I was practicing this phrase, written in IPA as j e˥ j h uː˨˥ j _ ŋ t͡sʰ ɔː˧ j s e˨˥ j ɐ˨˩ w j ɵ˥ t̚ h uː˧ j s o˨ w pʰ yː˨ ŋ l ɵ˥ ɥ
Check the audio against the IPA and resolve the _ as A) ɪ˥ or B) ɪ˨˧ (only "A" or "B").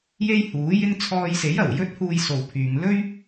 A